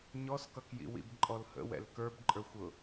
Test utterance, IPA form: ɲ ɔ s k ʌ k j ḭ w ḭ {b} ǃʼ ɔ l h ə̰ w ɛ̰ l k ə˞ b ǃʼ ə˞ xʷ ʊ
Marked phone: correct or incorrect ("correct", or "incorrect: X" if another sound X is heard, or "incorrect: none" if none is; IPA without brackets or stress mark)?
correct